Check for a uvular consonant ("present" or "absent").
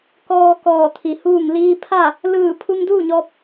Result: absent